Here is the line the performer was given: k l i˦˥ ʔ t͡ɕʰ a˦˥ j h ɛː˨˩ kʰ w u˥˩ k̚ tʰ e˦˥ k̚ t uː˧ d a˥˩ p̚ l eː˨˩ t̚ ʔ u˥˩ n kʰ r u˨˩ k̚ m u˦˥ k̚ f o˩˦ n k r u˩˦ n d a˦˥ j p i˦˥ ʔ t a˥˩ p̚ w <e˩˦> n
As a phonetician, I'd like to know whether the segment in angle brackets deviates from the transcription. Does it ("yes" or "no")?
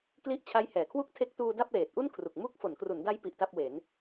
no